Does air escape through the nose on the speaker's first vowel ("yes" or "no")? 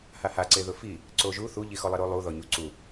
no